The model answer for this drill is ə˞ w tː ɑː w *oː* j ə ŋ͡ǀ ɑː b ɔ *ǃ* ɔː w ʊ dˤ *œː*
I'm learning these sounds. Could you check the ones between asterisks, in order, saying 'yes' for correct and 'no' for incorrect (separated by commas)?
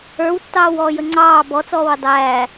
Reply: no, no, no